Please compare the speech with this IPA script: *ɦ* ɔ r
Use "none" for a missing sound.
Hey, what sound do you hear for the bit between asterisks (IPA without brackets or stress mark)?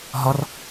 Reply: ɦ